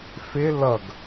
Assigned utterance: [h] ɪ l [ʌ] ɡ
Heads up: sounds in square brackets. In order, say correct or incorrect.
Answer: incorrect: f, correct

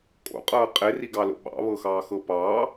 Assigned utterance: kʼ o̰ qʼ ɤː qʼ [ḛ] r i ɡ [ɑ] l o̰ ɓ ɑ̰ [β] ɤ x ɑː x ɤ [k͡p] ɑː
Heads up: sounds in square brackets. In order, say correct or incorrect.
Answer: incorrect: e, correct, correct, incorrect: p

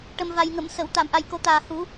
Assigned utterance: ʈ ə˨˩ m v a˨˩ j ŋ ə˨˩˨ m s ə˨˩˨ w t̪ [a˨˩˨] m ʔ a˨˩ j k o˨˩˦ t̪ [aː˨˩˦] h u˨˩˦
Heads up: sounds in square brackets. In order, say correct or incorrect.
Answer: correct, incorrect: aː˨˩

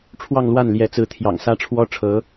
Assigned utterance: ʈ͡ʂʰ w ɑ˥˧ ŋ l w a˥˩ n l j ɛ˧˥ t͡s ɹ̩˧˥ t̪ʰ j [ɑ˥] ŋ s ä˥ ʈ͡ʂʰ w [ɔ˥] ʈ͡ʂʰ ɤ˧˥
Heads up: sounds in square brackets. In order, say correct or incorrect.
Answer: incorrect: ɑ̰˨˩, correct

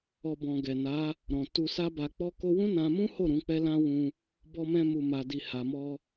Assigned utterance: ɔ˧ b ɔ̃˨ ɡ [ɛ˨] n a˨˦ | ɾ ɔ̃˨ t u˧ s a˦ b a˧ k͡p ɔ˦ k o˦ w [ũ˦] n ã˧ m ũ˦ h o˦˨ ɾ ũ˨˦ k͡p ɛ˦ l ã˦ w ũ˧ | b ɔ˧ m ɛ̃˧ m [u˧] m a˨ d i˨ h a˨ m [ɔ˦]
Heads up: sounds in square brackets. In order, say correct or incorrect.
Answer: correct, correct, incorrect: u˨, incorrect: ɔ˧

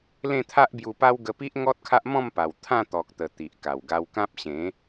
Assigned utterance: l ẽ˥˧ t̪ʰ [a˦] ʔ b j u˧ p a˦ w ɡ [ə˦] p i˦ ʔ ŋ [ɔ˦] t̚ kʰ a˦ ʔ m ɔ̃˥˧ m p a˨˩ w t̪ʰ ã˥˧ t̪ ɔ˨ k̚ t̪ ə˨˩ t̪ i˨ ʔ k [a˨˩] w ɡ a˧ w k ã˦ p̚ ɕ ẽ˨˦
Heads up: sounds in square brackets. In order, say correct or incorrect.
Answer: correct, incorrect: ə˧, correct, correct

